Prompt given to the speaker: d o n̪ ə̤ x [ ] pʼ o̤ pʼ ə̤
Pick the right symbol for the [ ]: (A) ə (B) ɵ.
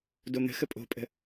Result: A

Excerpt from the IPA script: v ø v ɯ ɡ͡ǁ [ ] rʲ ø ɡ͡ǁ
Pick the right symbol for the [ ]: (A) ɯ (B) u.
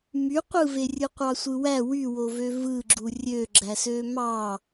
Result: B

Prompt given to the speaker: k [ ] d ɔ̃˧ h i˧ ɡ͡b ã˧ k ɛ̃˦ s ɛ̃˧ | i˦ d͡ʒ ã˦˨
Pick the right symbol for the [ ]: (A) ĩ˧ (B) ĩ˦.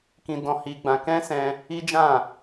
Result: A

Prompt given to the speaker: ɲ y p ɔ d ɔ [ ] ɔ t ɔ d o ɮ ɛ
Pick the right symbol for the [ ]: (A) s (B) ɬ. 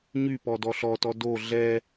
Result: B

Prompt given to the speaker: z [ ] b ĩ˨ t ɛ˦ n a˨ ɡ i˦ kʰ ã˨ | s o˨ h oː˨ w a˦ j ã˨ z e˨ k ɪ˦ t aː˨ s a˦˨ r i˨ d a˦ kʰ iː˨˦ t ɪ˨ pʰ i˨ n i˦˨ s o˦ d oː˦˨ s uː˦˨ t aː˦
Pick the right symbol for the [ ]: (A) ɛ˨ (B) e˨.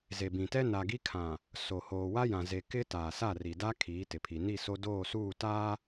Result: B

